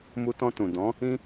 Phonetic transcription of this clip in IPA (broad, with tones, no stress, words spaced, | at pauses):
mu˧tɔ̃˧tũ˨ dɔ̃˨˦ | ĩ˦